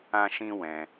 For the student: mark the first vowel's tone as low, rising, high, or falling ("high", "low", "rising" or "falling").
high